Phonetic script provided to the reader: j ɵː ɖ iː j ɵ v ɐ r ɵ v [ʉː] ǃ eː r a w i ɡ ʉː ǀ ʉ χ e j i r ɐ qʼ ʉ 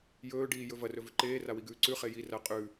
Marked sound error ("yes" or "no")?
yes